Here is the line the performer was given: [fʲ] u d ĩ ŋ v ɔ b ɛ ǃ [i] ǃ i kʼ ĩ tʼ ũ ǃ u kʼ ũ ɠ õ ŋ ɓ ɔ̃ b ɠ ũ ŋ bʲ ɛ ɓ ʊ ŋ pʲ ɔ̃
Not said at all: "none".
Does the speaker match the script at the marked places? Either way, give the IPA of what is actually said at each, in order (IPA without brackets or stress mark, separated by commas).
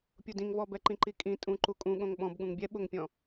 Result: pʲ, ĩ